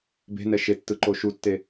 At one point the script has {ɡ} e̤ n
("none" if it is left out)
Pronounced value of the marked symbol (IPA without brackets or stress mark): b